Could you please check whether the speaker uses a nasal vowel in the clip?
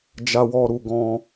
yes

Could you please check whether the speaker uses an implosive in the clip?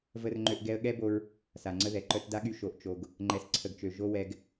yes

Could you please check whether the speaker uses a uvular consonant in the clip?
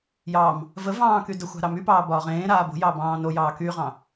yes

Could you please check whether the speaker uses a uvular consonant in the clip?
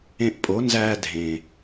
no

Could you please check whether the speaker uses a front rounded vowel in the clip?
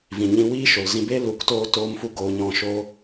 no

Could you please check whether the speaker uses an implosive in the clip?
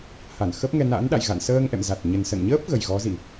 yes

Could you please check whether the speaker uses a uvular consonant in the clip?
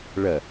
no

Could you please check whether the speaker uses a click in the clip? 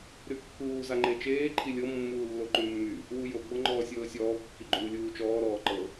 yes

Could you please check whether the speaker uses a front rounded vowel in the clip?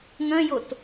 no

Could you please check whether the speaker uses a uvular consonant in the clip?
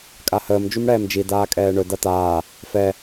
no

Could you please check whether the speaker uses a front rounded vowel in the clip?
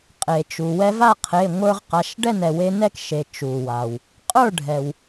no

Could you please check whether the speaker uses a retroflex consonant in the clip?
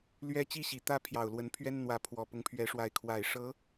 yes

